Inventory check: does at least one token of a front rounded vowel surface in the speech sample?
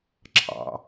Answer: no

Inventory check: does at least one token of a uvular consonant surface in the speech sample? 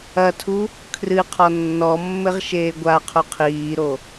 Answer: yes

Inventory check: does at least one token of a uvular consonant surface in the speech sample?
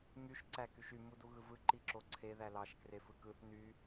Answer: no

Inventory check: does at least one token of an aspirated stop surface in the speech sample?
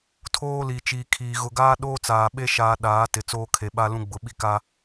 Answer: yes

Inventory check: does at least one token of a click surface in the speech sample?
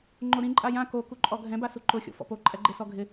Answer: yes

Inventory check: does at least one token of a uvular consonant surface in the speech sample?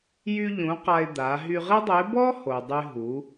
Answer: yes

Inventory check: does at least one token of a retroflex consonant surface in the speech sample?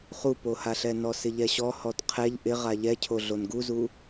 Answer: no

